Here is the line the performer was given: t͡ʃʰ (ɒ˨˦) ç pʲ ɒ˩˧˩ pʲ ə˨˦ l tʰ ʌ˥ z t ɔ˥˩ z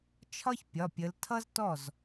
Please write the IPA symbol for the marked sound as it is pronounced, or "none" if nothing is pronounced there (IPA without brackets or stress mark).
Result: ɒ˥